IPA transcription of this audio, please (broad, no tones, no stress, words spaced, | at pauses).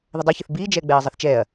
ðədˤɛçɘθ biːd͡ʒɛː ɡ͡bɛːɐ̯zˤɐθt͡ʃɛːɐ̯